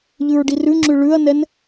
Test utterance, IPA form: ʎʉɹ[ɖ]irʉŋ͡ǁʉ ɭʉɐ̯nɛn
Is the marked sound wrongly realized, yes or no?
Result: no